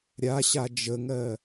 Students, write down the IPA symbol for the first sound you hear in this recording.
ɾʲ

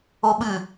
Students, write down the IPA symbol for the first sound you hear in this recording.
o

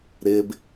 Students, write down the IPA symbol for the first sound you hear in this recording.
ɾ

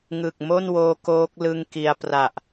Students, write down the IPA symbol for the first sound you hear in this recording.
ŋ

